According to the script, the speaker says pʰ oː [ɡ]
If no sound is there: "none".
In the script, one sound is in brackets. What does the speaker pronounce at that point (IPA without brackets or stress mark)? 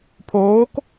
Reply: k